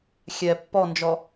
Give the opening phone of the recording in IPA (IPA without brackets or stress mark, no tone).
xʲ